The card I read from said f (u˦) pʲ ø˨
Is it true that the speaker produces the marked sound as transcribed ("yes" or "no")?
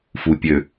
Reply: no